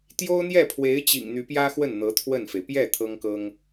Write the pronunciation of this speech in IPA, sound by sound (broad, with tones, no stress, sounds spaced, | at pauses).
t̪ j o˥ ʊ̯ n̪ j ɛ˥˩ pʰ w e˧˥ ɪ̯ t͡ɕ ḭ˨˩ ŋ n̪ y˧˥ p j ä˥ x w ə˥˩ n n̪ ɤ˧˥ t̪ʰ w ə˥˩ n f e˩ ɪ̯ p j ɛ˥˩ t̪ʰ ɤ˥ ŋ k ɤ˥ ŋ